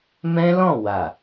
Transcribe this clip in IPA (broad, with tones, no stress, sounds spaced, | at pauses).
m ɛ̃˦ l ɔ̃˦˨ w a˨